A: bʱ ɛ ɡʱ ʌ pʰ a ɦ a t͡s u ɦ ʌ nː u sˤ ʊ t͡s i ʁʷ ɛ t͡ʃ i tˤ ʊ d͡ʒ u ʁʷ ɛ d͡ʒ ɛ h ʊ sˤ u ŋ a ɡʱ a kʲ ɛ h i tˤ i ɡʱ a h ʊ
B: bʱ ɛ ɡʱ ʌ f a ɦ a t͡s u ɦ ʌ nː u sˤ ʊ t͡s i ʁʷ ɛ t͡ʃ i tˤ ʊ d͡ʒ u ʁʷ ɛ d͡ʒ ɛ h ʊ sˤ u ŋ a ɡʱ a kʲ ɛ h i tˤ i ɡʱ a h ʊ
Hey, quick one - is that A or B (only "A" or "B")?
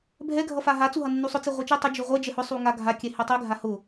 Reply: B